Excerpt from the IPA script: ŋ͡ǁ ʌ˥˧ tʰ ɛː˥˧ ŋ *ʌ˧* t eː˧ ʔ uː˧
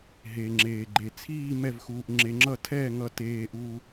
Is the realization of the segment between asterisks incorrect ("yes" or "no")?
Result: no